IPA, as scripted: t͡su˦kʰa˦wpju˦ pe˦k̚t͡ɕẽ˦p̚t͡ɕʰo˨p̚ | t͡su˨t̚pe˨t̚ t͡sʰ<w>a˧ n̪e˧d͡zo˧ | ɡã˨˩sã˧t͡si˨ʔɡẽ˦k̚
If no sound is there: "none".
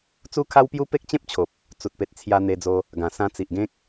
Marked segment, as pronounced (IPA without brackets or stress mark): j